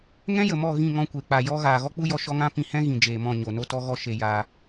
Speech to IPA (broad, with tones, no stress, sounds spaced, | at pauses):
ŋ ɛ̃˦ j ə˨ m ɔ˦˨ ɣ ĩ˦˨ ŋ ɔ̃˧ kʷ e˨ k͡p a˨ j ɔ˧ ɣ aː˨ ɣ ɔ˦ k͡p u˦ j ɔ˧ ʃ ɔ˧ ŋ ã˧ p ĩ˧ h ɛ̃˦ ɣ ĩ˨ d͡ʒ eː˨ m ɔ̃˦˨ ɲ o˨ n o˦ t ɔ˦ ɣ ɔ˦ ʃ e˧ j aː˧